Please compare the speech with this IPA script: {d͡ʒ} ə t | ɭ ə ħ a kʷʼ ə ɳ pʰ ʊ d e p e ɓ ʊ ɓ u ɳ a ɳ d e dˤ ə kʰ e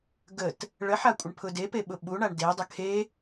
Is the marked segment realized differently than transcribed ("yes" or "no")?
yes